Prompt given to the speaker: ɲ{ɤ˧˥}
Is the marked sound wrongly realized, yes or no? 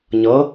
no